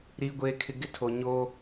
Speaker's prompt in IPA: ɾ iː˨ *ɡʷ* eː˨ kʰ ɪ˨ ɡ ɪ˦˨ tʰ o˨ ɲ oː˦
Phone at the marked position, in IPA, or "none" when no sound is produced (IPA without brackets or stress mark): ɡʷ